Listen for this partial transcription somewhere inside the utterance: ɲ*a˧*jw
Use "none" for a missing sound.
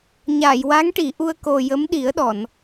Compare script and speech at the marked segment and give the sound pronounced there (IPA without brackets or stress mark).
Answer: a˨˩˨